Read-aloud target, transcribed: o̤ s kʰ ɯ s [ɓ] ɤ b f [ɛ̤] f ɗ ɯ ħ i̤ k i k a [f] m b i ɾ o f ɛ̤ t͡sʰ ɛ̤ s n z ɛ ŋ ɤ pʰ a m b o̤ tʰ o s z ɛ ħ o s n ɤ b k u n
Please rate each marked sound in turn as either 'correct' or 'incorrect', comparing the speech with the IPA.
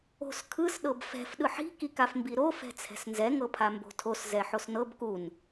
incorrect, correct, correct

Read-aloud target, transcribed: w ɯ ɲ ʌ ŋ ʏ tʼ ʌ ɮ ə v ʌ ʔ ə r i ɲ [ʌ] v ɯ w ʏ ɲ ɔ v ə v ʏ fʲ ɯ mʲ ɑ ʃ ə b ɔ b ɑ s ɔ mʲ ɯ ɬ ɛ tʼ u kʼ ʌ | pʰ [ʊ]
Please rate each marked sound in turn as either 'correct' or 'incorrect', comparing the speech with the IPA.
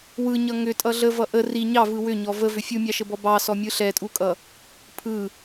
incorrect, incorrect

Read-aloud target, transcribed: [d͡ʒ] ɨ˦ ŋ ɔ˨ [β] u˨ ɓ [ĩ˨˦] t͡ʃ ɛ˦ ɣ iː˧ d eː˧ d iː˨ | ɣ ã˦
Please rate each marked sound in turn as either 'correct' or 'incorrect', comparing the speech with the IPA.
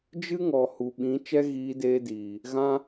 correct, incorrect, correct

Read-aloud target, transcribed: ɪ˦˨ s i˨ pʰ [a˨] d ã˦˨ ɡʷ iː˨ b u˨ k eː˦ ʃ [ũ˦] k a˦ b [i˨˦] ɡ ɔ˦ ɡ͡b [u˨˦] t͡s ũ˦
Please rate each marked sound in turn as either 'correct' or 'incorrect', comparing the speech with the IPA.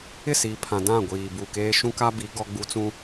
incorrect, correct, correct, incorrect

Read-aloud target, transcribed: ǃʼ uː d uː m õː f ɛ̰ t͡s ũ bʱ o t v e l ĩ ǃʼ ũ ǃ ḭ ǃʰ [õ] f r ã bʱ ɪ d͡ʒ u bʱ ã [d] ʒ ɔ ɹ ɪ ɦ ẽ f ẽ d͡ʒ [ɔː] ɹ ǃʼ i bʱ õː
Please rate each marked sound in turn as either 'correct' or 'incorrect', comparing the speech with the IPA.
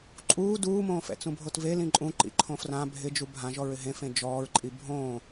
correct, incorrect, correct

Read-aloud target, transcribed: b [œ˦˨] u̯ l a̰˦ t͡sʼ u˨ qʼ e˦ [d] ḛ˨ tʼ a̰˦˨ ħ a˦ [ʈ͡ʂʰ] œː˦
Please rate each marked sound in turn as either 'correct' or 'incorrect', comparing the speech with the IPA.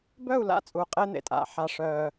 correct, incorrect, incorrect

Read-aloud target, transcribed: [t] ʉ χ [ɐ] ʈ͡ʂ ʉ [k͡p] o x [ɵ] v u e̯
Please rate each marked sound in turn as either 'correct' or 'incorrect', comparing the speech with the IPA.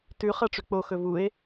correct, correct, correct, correct

